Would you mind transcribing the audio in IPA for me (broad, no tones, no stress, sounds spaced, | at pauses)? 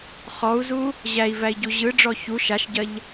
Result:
χ ɔ u̯ z u | ʑ æ i̯ v æ i̯ ɟ u ʑ ɯ ɖ͡ʐ ɔ ç u ʃ a ʃ ɟ ɐ ʎ